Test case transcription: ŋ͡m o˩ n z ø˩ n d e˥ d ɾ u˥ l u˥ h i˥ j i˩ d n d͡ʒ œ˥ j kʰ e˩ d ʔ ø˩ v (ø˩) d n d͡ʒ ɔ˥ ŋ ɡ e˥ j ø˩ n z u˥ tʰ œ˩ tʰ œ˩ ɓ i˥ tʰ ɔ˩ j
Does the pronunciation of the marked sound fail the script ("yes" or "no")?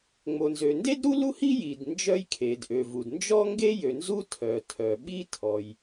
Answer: yes